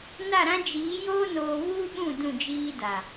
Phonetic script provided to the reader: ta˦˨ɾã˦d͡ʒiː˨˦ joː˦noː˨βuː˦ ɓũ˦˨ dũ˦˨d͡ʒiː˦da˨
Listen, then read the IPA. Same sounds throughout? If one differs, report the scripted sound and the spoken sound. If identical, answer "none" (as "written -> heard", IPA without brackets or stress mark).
t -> n